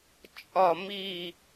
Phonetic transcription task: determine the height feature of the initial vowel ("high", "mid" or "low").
low